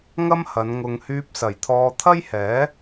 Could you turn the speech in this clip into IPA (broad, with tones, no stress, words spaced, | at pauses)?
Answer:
ŋɐ˥mhɐ˨˧n ŋʊ˨ŋhyː˧p̚sɐ˨˩jt̪ʰɔː˧ t̪ʰɐ˥jhɛː˨˥